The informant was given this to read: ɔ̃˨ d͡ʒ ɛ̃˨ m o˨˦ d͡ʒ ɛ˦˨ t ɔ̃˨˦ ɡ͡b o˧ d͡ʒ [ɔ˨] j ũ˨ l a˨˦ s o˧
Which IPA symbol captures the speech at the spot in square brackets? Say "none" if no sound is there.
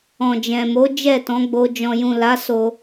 ɔ̃˨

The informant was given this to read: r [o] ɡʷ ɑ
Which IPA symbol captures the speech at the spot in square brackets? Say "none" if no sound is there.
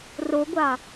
o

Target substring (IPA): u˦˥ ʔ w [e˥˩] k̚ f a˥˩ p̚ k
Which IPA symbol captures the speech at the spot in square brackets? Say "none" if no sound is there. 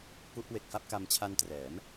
e˨˩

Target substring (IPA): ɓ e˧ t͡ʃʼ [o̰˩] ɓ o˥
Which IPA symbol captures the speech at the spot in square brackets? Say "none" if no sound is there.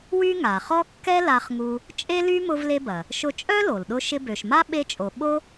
o˩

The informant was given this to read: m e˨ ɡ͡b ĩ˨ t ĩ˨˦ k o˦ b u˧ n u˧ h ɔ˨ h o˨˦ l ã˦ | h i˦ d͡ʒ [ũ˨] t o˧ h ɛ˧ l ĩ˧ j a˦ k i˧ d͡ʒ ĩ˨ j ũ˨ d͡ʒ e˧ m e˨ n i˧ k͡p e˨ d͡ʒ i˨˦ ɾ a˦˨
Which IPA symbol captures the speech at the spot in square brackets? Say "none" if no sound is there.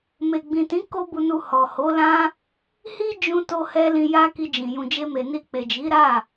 ũ˧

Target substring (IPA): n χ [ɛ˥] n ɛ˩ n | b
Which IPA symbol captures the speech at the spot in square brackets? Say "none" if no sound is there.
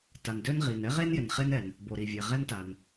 e˥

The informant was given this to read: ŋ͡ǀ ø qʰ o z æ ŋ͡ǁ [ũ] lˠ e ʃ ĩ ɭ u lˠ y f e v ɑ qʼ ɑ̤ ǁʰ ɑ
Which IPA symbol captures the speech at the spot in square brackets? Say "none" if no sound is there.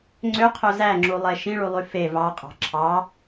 u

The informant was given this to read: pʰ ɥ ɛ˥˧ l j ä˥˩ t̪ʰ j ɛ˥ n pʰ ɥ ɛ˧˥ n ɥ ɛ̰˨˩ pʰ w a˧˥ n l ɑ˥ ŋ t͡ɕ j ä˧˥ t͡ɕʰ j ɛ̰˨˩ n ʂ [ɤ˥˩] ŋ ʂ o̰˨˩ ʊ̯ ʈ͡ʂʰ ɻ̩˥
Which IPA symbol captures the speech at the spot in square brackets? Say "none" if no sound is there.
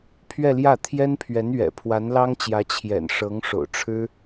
ɤ˧˥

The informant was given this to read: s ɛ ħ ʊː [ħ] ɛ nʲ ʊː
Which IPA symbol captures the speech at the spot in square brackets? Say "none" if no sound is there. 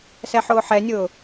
ħ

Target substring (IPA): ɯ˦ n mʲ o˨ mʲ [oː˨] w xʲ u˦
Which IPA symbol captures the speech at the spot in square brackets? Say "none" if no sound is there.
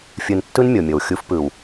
o˨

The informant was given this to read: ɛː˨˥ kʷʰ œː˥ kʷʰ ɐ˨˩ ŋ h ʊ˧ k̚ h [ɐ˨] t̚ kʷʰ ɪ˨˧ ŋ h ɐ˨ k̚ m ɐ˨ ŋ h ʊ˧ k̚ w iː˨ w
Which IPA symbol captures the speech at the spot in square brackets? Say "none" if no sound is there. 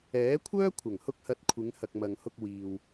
ɐ˨˥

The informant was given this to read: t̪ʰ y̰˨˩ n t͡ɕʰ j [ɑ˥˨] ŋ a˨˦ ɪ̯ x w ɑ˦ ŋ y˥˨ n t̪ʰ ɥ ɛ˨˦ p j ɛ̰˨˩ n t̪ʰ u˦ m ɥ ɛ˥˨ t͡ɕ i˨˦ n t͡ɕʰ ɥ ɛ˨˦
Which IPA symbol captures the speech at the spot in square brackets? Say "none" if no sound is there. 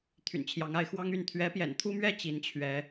ɑ˨˦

